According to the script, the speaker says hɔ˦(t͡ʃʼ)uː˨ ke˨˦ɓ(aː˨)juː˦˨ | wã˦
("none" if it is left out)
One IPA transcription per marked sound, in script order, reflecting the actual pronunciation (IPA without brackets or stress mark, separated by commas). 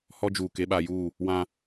d͡ʒ, aː˨